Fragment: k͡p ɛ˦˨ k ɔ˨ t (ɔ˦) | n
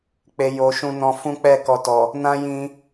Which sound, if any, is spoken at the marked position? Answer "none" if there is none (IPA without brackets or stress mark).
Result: ɔ˨